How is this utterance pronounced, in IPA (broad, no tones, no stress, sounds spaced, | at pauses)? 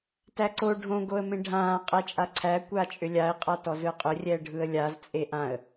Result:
t æ ǀ o ɖʱ õ ɡ o ə̯ m ẽ ɖʱ ãː qʼ ɛ t͡ʃʼ a ǀʰ æ kʷ a t͡ʃʼ ʏ lʲ a ɪ̯ qʼ a t ɔ z ɯ qʼ ʏ rʲ ɛ ə̯ ɖʱ ɯ ə̯ lʲ a z t͡sʼ e ʔ ã ə̯